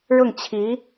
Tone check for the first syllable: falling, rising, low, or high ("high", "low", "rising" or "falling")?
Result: falling